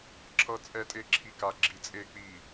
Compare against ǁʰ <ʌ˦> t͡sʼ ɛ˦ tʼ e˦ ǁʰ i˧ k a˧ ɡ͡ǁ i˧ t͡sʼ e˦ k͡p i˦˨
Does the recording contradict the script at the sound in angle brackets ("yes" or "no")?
no